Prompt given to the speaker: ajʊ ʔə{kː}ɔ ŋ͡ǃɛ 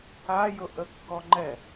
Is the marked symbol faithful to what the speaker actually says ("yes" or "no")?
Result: yes